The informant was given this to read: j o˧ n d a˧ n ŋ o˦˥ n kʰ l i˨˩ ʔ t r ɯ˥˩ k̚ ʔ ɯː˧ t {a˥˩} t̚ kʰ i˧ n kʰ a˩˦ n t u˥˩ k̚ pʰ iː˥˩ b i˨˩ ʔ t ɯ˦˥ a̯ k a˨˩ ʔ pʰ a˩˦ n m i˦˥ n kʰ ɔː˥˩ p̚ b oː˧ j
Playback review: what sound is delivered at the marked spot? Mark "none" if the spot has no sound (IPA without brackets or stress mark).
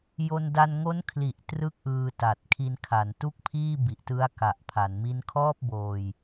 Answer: a˨˩